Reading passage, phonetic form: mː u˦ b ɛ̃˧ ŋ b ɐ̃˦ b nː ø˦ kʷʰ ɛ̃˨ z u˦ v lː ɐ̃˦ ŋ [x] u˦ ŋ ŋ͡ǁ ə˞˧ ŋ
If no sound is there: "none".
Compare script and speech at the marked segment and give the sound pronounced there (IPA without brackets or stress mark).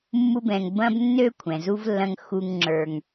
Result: x